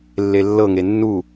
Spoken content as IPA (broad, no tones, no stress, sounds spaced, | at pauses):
lː e lː ɤ ŋ e nː u